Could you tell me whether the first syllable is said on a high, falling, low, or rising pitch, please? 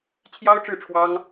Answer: high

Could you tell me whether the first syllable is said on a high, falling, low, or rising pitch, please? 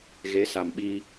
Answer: rising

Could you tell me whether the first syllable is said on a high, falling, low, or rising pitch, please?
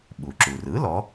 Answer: low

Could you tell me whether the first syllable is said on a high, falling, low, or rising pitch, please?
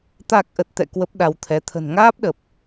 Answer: low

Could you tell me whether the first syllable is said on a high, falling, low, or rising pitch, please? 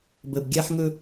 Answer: low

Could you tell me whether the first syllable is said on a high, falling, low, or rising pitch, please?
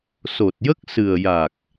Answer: low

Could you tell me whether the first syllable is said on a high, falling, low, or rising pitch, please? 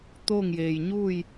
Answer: falling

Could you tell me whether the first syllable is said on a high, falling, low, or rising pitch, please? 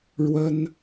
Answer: high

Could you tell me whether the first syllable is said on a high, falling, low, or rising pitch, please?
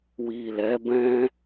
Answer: low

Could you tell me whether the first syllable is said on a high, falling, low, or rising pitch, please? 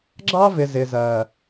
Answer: high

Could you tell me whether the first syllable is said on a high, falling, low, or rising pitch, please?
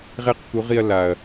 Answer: high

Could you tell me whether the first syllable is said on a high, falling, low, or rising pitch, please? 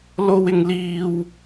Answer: high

